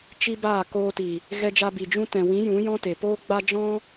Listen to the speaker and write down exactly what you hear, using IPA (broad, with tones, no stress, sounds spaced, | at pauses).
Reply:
t͡ʃ i˦ b aː˦˨ k oː˧ t i˨ | ɣ ɛ˧ d͡ʒ a˧ b i˨ d͡ʒ ũ˧ t ɛ̃˨ w ĩ˨˦ j ũ˨˦ j ɔ̃˦ t e˨ p oː˦ ɡ͡b a˦ d͡ʒ ɔ̃˦